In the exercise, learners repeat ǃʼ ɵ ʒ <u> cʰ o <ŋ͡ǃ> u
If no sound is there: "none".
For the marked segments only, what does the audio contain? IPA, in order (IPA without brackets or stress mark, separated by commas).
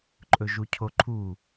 u, ǃʰ